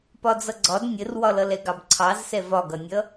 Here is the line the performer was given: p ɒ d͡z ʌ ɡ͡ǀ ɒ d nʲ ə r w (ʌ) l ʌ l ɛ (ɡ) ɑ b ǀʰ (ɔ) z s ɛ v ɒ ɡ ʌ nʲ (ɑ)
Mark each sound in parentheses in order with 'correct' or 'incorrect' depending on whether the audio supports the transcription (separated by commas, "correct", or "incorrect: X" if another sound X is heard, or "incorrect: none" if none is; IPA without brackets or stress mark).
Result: incorrect: ɒ, correct, incorrect: ɑ, incorrect: ʌ